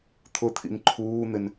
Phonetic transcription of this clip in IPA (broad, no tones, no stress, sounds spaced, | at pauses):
t̪ʰ ʊ t̪ʰ ḭ n ǃʰ uː n̪ ɪ n